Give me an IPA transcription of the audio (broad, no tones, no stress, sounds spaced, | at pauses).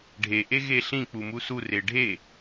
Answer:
ɖʱ e ʔ e ɣ e ɬ ĩ k͡p u m u s u r e ɖʱ e